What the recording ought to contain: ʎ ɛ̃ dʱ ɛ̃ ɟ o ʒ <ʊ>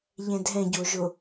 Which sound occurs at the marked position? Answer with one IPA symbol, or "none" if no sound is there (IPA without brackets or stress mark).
ʊ